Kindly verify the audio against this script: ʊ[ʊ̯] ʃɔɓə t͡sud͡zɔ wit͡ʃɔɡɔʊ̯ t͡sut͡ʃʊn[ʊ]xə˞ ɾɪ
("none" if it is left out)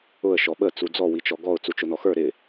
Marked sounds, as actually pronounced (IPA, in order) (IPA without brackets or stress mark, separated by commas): ə̯, ɔ